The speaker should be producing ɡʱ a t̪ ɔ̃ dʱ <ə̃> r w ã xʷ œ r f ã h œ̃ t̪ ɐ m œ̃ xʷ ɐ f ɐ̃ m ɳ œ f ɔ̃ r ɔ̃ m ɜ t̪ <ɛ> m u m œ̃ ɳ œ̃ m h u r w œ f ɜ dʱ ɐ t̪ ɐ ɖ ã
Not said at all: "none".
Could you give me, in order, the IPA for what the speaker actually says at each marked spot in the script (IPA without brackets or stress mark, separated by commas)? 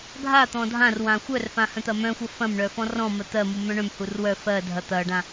ã, ɜ